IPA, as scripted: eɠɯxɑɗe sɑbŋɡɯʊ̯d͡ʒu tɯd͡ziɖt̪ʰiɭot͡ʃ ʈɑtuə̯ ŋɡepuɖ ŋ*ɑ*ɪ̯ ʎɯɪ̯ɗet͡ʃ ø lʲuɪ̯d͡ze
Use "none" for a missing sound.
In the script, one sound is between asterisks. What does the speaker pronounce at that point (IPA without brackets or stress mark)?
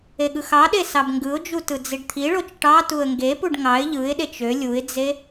ɑ